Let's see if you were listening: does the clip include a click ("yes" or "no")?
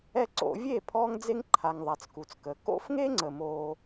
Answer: yes